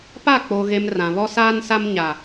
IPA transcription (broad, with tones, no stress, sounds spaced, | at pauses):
p a˦˨ k͡p oː˨ ɣ e˨ m r ã˨ β ɔ˦ s aː˦ n s a˦ m ɲ a˨